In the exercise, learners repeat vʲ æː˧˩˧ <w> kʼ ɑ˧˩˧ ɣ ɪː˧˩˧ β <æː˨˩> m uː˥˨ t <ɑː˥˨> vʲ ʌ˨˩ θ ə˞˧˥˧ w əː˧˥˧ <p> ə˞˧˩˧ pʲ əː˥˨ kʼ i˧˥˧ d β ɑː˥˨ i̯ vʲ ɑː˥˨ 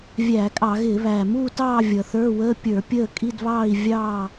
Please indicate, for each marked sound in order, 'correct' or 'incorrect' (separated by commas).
incorrect, correct, correct, incorrect